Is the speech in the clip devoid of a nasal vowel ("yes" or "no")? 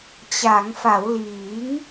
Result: yes